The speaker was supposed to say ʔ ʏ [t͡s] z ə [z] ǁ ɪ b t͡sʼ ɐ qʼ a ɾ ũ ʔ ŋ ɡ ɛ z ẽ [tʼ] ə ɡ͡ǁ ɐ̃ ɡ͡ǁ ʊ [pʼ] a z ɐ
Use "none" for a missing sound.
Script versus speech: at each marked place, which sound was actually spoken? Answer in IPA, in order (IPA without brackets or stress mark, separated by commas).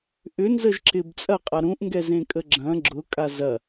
n, ʒ, kʼ, kʼ